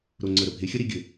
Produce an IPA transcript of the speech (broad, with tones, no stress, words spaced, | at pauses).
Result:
ɾo˨˩ŋ͡ǀə˨˩ɾə˨˩ bʱe˨˥xʲə˥ ɾi˥ɡʲɘ˨˩